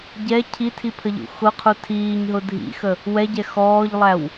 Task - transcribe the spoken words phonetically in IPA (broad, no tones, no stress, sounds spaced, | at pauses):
ɟ ɛ cʰ i tʰ i pʰ ə ʎ ṵ x ʊ qʰ u tʰ iː ɲ ɦ ʊ dʱ ḭ x ə | w ɛ ɟ ɛ x ɔː ʎ lˠ æ w